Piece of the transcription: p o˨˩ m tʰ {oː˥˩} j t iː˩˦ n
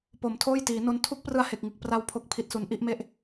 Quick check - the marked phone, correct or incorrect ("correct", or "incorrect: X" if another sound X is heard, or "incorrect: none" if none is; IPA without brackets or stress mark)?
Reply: correct